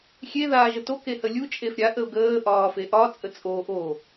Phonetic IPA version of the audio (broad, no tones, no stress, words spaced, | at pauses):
xʲe ðaːʒəto kehəlʲu t͡ʃʼefɾʲa ʔəʊ̯ɡəː ʔɒːfeʔɒ t͡sʼət͡sʼo ʔo